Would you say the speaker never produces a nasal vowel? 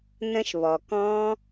no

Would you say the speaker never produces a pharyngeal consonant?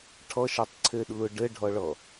yes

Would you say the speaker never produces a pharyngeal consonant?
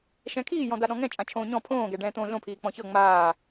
yes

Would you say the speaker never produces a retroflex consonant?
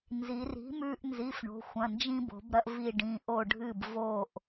no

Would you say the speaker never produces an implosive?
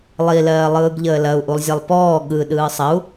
no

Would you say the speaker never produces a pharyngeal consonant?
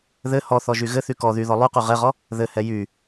yes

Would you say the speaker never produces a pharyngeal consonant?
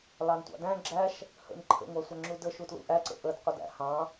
yes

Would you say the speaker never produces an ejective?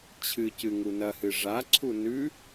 yes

